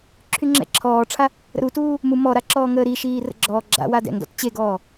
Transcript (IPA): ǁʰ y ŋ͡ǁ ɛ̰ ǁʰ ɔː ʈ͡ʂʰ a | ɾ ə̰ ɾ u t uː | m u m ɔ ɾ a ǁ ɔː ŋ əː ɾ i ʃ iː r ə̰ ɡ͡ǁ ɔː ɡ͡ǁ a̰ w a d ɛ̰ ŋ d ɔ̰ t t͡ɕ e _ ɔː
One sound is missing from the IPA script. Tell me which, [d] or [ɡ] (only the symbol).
ɡ